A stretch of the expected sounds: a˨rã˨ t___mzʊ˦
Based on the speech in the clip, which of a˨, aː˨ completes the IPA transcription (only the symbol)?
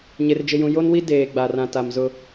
a˨